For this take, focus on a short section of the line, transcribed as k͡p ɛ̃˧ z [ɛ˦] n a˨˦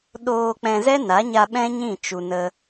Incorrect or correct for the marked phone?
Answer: correct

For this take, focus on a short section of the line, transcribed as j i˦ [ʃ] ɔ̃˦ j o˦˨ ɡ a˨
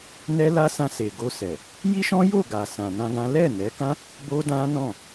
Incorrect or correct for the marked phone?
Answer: correct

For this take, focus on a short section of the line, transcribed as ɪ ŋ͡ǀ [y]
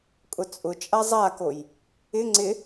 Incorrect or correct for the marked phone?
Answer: incorrect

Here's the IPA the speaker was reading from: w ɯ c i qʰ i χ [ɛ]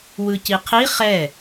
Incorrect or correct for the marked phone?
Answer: correct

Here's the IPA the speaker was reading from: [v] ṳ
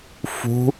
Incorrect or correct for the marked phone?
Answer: incorrect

